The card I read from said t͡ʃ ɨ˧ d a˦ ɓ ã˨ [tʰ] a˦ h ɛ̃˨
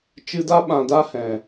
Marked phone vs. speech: incorrect: d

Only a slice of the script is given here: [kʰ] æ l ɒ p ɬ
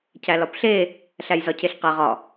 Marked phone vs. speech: incorrect: cʰ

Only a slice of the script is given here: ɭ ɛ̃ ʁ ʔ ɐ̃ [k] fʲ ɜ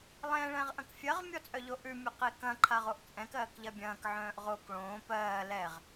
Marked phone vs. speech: correct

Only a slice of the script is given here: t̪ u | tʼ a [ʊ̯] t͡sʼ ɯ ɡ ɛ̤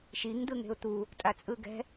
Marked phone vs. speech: incorrect: none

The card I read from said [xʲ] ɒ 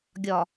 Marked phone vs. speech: incorrect: ɡʲ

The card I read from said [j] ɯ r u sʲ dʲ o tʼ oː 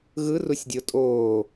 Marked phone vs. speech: incorrect: ɣ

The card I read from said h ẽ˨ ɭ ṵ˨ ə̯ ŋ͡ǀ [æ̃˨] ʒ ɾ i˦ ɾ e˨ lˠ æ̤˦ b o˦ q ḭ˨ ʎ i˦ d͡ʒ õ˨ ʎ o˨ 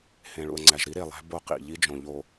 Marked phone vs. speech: incorrect: æ˨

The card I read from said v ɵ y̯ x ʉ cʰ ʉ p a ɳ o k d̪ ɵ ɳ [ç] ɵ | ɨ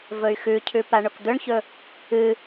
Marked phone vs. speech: correct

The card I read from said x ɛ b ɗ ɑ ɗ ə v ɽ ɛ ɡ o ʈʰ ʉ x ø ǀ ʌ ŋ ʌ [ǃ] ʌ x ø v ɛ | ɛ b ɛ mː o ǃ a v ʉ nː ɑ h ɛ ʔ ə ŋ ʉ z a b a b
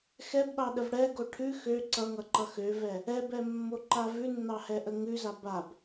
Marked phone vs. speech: correct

